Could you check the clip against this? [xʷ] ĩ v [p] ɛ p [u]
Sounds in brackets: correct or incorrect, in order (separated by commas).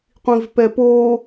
incorrect, correct, incorrect